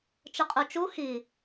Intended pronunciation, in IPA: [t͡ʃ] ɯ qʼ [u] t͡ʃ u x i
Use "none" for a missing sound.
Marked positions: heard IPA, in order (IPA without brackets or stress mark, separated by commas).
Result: t͡ʃ, u